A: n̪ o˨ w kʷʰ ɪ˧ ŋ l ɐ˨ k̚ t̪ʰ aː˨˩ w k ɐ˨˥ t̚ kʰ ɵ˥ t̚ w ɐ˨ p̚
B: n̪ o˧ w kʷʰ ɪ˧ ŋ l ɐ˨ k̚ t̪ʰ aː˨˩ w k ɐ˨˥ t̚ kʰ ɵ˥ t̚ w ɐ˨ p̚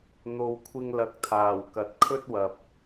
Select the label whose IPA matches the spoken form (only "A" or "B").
A